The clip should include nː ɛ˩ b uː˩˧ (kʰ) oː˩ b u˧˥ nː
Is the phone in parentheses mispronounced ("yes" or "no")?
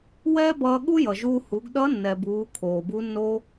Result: no